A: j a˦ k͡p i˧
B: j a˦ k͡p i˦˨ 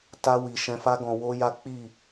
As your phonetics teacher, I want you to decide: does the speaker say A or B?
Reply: B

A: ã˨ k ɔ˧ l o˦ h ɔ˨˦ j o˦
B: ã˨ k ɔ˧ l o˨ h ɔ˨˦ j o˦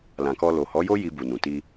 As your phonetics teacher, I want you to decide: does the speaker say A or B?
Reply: B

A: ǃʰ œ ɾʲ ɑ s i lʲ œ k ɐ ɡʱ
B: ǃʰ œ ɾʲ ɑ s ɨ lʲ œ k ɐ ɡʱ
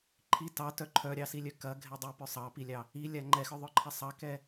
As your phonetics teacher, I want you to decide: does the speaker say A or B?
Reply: A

